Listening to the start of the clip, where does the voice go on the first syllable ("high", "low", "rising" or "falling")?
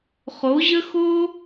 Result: rising